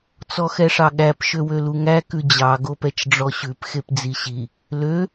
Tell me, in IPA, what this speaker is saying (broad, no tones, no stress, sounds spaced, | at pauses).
t͡s ɔ x ɛ ʂ ɑ ɠ æ p ʃ ø w ø l u ŋ æ k ʉ d͡ʑ ɑ ɡ o p ɛ t͡ʃ ɖ͡ʐ ɔ ɕ ʉ p x e p d͡z i ɕ i | l ø